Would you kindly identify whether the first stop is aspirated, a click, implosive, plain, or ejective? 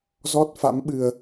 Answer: plain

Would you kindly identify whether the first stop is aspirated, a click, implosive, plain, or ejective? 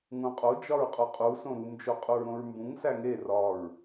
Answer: ejective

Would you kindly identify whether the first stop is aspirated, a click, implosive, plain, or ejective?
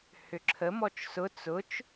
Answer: click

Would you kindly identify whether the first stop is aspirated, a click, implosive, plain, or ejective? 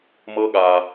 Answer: implosive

